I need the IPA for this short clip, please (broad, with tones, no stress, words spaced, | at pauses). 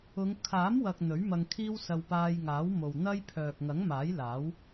ʊ˨˧ŋ kʰaː˨˥mwɐ˨k̚ n̪ɵ˨˥ɥmɐ˧ŋkʰiː˥wsɐ˧w paː˧jŋaː˨˥w mo˨wn̪ɐ˥j pʰœː˨k̚ ŋɐ˨˥ŋmaː˨˥jlaː˨˥w